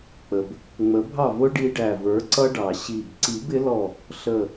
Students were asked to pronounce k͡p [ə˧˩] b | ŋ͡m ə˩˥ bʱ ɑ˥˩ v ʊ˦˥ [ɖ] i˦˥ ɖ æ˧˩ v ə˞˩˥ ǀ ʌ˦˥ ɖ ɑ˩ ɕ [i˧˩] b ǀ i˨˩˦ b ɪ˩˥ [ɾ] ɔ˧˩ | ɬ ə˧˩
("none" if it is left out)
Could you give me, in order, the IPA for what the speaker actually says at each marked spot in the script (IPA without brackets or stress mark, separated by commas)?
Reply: ə˩, ɖ, i˧˩, l